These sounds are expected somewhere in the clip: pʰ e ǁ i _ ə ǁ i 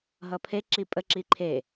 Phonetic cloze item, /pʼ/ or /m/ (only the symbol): pʼ